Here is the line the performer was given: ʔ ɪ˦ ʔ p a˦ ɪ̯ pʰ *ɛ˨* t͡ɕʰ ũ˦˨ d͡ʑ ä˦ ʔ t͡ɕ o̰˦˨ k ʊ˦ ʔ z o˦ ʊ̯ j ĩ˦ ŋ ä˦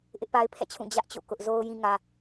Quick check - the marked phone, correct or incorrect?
incorrect